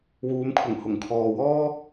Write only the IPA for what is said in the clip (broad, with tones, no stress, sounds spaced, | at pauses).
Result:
w uː˨˧ m kʰ ʊ˨˩ ŋ h ʊ˨˩ ŋ kʰ ɔː˨ w ɔː˥